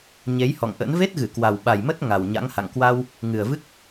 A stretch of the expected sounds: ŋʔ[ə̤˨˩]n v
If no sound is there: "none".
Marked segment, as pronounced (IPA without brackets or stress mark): ə̰˧˥